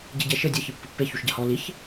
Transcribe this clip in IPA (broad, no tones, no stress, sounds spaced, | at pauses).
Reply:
ɟ e ɟ ɛ ʃ ɘ dʲ ɐ ç ɨ pː ɨ pː e ç u ʃ ɟ ɐ h ɔ l i ç